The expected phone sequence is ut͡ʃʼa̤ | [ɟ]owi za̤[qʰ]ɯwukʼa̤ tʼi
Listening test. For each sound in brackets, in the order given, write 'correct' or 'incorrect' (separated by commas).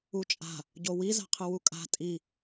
correct, correct